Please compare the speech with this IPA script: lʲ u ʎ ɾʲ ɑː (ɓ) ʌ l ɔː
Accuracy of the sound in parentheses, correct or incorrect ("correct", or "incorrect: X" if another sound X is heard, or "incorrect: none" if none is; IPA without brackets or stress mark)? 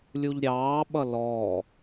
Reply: correct